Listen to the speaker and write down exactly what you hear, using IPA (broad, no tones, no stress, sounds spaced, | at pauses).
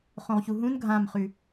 χ õ ʁ ç u ɦ ũ n ɡʱ ã m χ ʉ